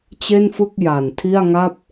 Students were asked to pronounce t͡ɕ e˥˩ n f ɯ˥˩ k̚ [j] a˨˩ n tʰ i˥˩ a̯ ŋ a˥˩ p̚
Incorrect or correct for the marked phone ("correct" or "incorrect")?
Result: correct